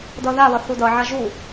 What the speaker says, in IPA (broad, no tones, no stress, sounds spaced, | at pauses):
d ʌ ð a β ʌ θ u d ʌ ʕ a ʒ u